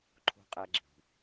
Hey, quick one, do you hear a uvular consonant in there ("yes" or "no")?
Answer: yes